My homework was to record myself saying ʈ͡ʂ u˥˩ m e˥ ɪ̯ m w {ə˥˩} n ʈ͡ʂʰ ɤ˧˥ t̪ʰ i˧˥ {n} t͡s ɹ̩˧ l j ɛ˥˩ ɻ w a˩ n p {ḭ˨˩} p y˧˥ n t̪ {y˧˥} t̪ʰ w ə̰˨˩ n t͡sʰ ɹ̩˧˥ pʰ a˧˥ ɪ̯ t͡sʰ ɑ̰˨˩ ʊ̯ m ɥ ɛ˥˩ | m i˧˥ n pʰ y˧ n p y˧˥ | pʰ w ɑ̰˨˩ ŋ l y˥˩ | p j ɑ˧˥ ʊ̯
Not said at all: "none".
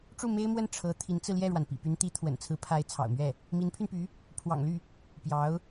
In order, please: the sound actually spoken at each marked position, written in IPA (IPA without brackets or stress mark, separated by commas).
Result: ə˥˩, n, ḭ˨˩, i˧˥